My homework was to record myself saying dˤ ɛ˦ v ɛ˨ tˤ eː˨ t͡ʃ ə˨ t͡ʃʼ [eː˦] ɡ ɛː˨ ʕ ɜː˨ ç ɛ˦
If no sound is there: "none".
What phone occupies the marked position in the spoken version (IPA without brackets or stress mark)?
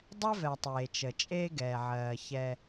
eː˦